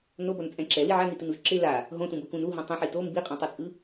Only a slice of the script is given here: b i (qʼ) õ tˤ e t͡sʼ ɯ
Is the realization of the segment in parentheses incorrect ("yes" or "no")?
no